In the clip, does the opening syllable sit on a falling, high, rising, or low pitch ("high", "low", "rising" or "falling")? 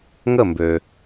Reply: falling